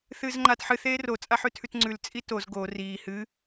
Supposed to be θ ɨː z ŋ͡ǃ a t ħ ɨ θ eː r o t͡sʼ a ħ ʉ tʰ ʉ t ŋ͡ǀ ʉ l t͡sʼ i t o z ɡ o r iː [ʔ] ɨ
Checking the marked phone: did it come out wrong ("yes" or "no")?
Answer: yes